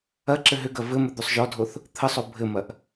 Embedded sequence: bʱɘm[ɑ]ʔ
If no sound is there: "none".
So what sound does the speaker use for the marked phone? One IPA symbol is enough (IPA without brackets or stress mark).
ɐ